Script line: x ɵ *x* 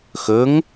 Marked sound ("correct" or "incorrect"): incorrect